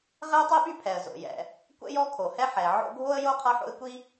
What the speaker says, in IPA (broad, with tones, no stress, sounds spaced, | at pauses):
ʁ ɛ˥ ʊ̯ tˤ i˥ ɓ y˥ pʰ ɛ˩ ə̯ z o̰˩ j ɛ̰˩ | kʷ ɛ̰˥ j ɔ˥ kʰ o˩ h ɛ˥ ħ ɛ˩ ʕ o̰˥ ɡʱ o˥ ə̯ j o˥ qʰ ɤ˥ ħ o̰˥ ɪ̯ kʷ i˥